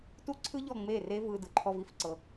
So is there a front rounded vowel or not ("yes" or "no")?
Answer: no